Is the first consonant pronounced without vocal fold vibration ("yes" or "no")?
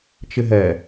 yes